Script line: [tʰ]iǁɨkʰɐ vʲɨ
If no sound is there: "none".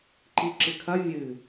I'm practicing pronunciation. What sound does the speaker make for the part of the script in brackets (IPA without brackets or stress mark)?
ǃ